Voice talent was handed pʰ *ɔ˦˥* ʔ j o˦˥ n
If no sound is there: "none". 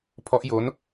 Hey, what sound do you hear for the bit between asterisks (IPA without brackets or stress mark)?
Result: ɔ˦˥